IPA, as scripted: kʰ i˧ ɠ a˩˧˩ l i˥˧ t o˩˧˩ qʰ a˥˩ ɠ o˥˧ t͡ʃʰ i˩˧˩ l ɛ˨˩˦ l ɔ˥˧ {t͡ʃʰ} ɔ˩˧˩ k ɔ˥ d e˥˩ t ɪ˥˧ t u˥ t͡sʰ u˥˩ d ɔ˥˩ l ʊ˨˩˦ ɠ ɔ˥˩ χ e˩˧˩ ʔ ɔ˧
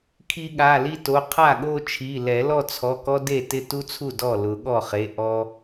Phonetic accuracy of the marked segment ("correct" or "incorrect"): incorrect